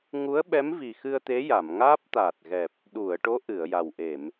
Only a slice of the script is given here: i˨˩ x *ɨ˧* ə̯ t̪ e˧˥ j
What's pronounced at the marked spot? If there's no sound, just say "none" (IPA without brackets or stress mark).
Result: ɨ˧